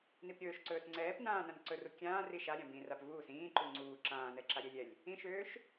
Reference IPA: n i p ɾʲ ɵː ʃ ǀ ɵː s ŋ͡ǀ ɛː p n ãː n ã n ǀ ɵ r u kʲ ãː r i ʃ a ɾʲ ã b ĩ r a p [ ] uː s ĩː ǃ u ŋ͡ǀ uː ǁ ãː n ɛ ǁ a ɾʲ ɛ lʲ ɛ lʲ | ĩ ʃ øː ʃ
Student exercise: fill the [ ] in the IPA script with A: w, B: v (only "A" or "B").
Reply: B